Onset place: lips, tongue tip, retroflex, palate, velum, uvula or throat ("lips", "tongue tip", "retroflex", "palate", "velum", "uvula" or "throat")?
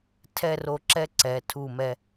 tongue tip